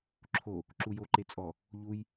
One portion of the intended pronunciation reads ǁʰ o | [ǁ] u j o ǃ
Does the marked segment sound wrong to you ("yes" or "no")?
no